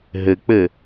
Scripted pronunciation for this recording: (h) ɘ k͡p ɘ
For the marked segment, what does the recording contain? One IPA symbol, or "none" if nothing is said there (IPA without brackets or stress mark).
ɦ